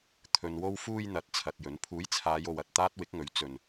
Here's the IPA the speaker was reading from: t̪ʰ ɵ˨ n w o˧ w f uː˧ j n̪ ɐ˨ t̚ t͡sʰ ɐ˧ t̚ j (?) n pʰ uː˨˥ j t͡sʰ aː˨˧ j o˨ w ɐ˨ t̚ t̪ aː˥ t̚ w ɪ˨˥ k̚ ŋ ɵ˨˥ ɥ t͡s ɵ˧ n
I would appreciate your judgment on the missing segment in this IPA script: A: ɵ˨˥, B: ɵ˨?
A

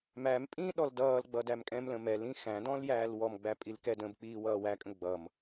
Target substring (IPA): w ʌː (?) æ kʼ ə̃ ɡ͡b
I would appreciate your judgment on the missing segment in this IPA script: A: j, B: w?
B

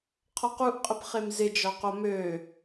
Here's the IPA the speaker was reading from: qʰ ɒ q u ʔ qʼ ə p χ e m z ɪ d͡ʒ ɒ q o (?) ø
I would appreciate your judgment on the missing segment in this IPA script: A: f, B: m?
B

